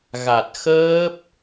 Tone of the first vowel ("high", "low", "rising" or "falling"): low